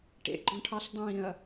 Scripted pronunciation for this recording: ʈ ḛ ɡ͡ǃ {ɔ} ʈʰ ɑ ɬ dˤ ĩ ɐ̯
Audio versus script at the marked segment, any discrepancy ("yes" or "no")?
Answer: yes